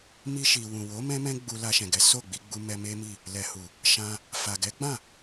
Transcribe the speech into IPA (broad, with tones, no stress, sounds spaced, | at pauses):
m i˧ ʃ i˨ w ũ˨ w o˨˦ m ɛ̃˦ m ɛ̃˦ ɡ͡b u˧ l a˧ ʃ ɛ̃˨ ɡ ɛ˨˦ s o˦˨ ɡ͡b i˧ ɡ͡b u˧ m ɛ˧ m e˦ m i˦˨ | l ɛ˨ h u˨ | ʃ ã˧ | f a˨ ɡ ɛ˨˦ ɡ͡b ã˦˨